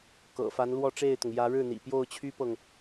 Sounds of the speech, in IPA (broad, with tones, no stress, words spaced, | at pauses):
kɤ̰˨˩fa˧˥n lwɔ˥˧ʈ͡ʂe˥˩ɪ̯t̪ʊ˩ŋ jä˧˥ɻɻ̩˥˩n̪ḭ˨˩ pjo˥˩ʊ̯t͡ɕʰy˥pɤ˨ŋ